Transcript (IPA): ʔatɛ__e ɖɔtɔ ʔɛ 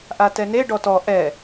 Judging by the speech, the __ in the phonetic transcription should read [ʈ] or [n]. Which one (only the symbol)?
n